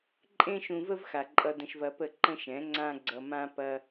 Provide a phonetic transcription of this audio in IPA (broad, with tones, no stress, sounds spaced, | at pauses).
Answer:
ǃʼ ẽ˦ ʃ ũ˧ v ə˦ v x a˨ ǃʼ ʌ˧ d ə̃˧ ʃ v ɐ˧ p ə˦˨ ǃ ə̃˦ ʃ ɛ̃˨˦ ŋ͡ǀ ã˦ ɡ͡ǀ ʌ˧ m ã˦ p ɐ˧